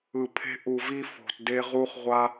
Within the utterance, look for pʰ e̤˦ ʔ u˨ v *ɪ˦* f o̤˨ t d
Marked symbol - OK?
no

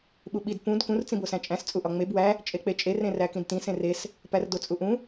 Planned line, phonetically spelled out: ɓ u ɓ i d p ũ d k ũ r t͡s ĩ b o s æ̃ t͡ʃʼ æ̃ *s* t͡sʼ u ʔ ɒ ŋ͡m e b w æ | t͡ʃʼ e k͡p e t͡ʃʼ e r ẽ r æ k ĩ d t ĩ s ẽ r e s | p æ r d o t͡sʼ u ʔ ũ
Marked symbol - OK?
yes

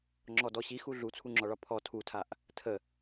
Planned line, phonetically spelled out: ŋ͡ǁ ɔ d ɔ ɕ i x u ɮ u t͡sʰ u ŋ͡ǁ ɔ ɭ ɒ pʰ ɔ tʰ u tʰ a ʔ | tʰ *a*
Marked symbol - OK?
no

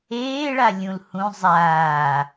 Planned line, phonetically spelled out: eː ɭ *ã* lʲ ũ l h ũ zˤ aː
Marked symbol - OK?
no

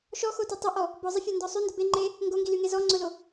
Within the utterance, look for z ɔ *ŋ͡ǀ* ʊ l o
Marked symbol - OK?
yes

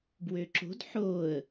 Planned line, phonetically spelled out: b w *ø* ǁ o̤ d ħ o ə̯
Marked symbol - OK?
yes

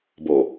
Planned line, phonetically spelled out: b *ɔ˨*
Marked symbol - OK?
no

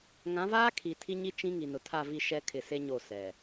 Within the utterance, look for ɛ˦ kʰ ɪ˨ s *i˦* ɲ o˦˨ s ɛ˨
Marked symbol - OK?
no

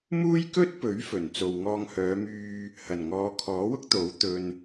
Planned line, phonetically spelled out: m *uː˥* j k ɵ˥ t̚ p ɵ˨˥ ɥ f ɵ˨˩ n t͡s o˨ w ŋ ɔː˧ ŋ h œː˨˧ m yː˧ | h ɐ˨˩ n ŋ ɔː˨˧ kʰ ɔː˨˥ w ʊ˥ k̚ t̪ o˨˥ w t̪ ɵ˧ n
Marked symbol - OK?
yes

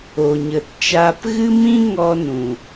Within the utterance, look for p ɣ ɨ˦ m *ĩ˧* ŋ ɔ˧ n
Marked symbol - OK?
no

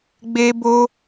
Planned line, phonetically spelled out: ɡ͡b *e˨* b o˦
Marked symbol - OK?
no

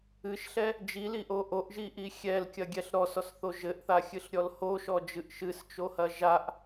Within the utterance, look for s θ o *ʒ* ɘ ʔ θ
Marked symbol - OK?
yes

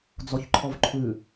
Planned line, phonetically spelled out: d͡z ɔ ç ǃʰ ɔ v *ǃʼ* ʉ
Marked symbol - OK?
no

